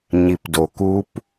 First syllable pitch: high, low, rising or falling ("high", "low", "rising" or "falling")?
low